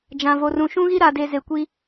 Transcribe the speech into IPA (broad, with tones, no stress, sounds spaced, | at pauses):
d͡ʒ ã˨ v o˨ r ũ˨ ʃ ũ˦ ɣ i˦ ɾ aː˨ d e˨ z e˨ kʷ i˦